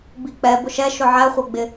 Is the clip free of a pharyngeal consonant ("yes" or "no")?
no